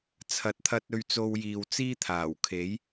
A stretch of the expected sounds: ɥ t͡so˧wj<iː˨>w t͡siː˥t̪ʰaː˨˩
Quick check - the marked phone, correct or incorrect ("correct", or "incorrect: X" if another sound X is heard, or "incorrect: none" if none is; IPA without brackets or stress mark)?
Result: correct